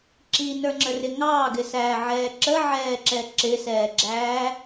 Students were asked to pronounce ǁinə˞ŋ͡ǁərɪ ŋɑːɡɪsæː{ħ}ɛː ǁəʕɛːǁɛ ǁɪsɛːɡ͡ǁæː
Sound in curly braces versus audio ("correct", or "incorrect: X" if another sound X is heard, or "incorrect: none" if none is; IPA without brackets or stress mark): incorrect: ʕ